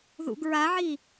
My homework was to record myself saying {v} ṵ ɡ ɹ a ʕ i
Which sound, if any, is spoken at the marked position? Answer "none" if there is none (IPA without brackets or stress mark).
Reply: ð